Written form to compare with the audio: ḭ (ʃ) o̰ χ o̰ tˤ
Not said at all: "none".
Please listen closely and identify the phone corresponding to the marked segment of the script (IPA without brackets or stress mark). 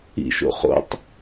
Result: ʃ